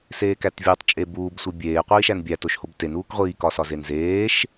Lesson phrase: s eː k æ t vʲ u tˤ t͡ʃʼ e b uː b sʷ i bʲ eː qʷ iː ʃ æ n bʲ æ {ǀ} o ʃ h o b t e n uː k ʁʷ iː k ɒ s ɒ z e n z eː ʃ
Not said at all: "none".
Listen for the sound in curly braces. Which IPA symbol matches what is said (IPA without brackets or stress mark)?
t